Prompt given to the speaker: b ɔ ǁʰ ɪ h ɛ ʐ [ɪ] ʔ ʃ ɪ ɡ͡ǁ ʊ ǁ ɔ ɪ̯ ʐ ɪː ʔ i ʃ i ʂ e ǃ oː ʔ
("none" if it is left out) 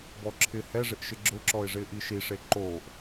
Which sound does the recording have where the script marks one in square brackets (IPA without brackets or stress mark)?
ɪ